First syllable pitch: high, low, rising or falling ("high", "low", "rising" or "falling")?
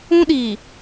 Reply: high